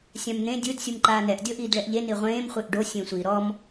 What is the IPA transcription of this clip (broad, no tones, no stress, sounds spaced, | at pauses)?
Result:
sʲ ã m n̪ ẽ dʲ ɯ d sʲ u m ǃ aː n ɛ ʔ dʲ ɤ ʔ iː d ɭ ɛ ʔ ʎ e n i ʁʷ ẽː m χʷ e ʔ ɖ o sʲ ẽ sʷ i ɾ ɔ m